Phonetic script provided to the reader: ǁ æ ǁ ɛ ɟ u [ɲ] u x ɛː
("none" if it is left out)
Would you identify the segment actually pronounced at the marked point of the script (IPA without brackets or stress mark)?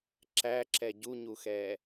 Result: ɲ